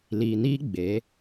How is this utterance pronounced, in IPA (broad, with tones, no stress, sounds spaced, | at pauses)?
l iː˨ n iː˦ ɡ͡b e˨˦